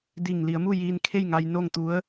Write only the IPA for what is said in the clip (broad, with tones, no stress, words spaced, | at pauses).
di˧˩ŋ li˩˧ə̯mu˥˨ jiː˧nkʰe˥˨jŋa˧j no˥˨ŋt̪u˧˥ə̯